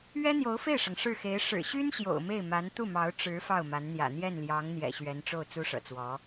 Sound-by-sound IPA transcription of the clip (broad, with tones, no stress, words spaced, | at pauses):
ɥɛ˥n̪jo˧˥ʊ̯fe˥˩ɪ̯ʂɤ˩ŋ ʂɻ̩˥˩xe˧˥ɪ̯ ʂɻ̩˨˩ɕy˥n ɕjo̰˨˩ʊ̯me˥˩ɪ̯ma˧˥n t̪u˥˩mɑ˧˥ʊ̯ ʈ͡ʂɻ̩˧˥ fɑ˥˩ʊ̯ma˧˥nn̪jä̰˨˩ n̪jɛ˥˩nljɑ˧˥ŋ n̪jɛ̰˨˩ɕɥɛ˧˥nʈ͡ʂo˥˩ʊ̯ t͡su˥ʂɤ̰˨˩t͡swɔ˧˥